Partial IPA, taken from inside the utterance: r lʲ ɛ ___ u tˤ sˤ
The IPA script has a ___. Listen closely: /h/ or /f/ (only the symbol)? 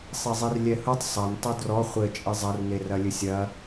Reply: h